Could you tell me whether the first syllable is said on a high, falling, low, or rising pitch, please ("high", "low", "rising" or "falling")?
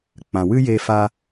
low